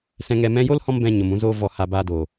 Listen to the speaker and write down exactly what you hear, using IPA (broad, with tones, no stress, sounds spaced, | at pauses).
s ɛ̃˧ ŋ ɛ˧ m ɛ̃˦ j o˦ l h ɔ̃˧ m b ɛ̃˨ ɲ o˨ m ũ˧ z oː˧ v ɔ˧ h a˧ b aː˧ d oː˨